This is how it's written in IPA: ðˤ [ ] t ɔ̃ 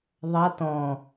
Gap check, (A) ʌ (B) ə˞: A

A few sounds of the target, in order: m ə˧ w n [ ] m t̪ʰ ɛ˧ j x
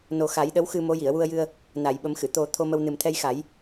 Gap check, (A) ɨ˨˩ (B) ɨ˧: A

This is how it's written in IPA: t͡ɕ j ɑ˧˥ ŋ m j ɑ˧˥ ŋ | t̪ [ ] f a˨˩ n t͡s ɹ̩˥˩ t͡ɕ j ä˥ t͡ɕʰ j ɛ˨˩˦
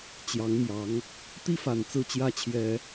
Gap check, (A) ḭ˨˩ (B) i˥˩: B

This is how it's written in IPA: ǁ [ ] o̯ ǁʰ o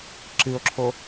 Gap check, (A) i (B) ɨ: B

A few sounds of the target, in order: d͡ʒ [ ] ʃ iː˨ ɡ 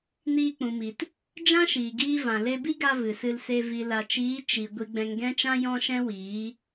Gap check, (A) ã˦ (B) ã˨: A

